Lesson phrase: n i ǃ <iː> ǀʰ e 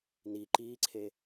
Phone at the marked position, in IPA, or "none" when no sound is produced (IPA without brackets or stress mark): iː